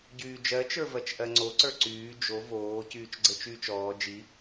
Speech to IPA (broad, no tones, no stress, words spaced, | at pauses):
ɟyːd͡ʒɜt͡ʃə˞ vɜt͡ʃʔɜŋ͡ǀoǀə˞ ǀyː d͡ʒo voː cyːt͡ʃɡ͡ǀɘt͡ʃyːt͡ʃɔː d͡ʒi